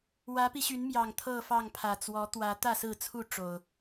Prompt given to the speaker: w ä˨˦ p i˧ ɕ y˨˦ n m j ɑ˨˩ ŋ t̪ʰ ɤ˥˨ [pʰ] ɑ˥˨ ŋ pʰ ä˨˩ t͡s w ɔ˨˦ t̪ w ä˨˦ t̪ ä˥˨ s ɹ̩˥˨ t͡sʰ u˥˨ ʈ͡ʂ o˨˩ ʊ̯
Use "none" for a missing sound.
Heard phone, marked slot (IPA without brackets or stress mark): f